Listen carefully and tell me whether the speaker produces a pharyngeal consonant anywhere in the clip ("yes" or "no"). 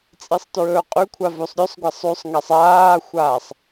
no